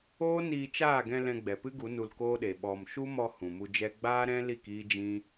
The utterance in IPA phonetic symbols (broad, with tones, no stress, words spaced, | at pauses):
oː˦niː˧t͡ʃaː˦˨ɡɛ̃˧ lɛ̃˧ɡ͡bɛ˨pɨ˦ɡu˨˦ nu˧lkoː˦ɗe˨ ɓɔ˨m ʃu˦mɔ˧ hũ˨mu˧d͡ʒɛ˦ ɡ͡baː˦ɾɛ̃˦li˦˨k iː˦d͡ʒĩ˦